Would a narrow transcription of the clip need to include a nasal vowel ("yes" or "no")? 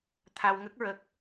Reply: no